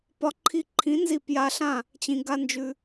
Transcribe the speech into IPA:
p ɒ˦ ǃʰ i˧ ǃʰ ĩ˨˦ n z i˦˨ p j a˧ ɬ ã˦˨ | t͡ɕ ĩ˧ ɡ a˦ n d͡ʒ ʉ˧

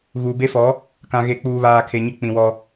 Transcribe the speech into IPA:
ɣ uː˨ b e˦ f ɔ˨˦ | k ã˨ ɣ e˨ k͡p uː˨ β aː˨ kʰ e˨ ɲ ɪ˦ k͡p ĩ˨ w ɔ˦

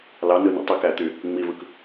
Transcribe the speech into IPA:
l ɑ n ɯ n ḭ tˤ y k æ t̪ y | ŋ͡m i v ɯ k

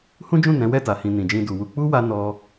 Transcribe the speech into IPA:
h ũ˦ d͡ʒ ũ˦˨ n ɛ̃˨˦ w ɛ˦˨ t a˨ h ĩ˨ n ĩ˨ d͡ʒ ĩ˧ d u˨ w u˧ k͡p u˦ w a˧ n ɔ˧

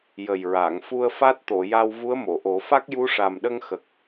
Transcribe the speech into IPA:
j ə˨˩ j ɹ a˨˩˨ ŋ f u˧ ə̯ f a˦˥ t̚ t̪ o˨˩˨ j a˧ w v u˧˥ ə̯ m o˨˩˨ ʔ o˨˩˦ f a˦˥ k̚ j u˧˥ ʂ a˨˩ m ɗ ə˧ ŋ x ə˨˩ k̚

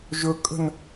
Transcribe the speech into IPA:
ʒ ɵ kʼ ə̤ n

